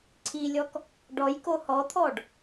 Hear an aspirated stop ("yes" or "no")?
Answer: yes